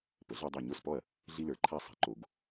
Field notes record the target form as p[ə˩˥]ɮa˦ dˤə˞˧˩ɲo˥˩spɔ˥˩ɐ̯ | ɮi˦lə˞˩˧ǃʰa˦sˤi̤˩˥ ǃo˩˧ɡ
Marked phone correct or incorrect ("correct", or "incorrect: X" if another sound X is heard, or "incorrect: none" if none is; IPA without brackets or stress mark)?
correct